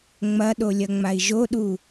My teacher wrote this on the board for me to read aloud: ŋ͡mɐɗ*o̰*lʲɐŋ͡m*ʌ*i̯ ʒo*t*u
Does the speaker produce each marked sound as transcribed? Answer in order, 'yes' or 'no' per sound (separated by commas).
no, no, no